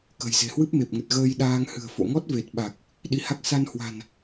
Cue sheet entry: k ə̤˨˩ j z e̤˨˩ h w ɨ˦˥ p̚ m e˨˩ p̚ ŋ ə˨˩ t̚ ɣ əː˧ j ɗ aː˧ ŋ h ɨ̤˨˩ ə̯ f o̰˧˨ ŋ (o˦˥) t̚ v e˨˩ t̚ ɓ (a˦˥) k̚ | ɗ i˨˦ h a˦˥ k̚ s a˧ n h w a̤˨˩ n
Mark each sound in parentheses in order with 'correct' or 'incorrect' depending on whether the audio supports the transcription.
incorrect, incorrect

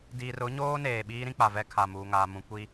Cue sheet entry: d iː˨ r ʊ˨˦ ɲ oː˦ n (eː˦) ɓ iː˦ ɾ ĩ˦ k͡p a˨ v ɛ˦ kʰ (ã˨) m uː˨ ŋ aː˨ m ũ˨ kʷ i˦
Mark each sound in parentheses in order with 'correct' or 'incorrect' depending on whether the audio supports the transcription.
incorrect, incorrect

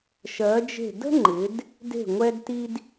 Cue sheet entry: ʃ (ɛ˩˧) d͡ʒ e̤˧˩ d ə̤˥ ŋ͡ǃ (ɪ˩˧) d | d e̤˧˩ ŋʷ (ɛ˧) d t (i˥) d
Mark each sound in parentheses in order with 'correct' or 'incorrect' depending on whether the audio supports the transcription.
incorrect, correct, correct, incorrect

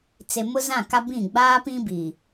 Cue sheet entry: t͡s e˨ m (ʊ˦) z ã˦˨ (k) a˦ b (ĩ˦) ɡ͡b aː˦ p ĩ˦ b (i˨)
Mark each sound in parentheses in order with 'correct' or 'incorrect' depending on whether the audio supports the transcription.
correct, correct, incorrect, correct

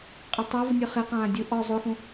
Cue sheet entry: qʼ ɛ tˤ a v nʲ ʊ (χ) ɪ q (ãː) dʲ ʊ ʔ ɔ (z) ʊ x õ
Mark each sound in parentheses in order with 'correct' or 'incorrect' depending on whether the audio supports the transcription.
correct, correct, incorrect

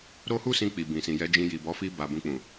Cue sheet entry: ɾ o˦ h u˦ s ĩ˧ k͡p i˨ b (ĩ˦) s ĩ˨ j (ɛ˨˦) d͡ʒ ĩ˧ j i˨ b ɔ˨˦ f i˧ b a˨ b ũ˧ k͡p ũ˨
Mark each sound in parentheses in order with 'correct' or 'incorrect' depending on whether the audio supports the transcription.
incorrect, correct

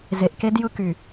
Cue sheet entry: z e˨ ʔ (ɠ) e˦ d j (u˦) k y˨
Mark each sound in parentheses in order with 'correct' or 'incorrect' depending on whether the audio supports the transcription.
incorrect, incorrect

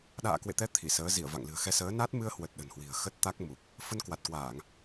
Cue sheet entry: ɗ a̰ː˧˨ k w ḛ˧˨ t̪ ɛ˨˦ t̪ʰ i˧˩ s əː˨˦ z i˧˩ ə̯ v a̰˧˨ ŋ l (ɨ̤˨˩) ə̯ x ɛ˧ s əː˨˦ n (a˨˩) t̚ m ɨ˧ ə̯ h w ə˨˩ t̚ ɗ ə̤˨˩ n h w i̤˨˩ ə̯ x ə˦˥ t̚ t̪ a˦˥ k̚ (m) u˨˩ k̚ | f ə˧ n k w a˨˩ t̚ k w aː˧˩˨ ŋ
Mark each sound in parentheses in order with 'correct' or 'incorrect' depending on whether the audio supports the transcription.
correct, incorrect, correct

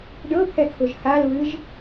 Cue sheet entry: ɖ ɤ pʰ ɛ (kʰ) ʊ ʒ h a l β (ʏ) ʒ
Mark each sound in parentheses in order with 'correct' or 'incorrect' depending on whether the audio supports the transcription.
correct, incorrect

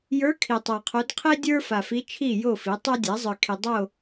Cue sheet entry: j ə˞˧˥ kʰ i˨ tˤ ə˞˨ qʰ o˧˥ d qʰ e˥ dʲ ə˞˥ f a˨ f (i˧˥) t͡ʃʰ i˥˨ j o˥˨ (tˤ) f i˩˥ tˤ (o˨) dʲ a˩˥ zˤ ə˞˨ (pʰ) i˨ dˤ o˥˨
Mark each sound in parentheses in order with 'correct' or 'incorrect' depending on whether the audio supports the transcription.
correct, incorrect, incorrect, incorrect

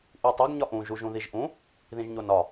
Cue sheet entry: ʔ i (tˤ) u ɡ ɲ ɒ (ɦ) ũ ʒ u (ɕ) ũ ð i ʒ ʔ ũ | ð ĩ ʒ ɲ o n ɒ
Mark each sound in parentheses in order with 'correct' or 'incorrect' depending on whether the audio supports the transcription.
correct, incorrect, incorrect

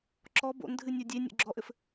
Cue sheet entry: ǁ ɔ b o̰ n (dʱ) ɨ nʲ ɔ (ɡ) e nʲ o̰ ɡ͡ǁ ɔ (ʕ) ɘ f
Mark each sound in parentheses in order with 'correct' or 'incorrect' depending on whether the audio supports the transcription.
correct, incorrect, incorrect

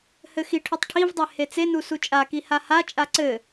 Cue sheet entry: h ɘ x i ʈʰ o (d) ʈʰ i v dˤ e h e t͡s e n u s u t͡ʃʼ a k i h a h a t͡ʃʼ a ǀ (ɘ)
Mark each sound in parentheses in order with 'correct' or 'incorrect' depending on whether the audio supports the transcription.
incorrect, correct

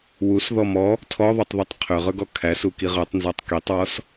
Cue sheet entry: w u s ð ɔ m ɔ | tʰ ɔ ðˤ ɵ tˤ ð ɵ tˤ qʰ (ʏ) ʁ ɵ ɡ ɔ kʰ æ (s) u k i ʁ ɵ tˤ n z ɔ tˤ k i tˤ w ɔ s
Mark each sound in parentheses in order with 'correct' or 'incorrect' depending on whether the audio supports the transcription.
correct, correct

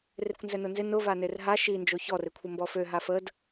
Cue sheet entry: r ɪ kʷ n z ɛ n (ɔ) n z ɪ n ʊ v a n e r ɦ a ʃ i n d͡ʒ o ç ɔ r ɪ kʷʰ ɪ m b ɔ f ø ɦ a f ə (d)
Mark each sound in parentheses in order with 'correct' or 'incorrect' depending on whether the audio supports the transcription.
incorrect, correct

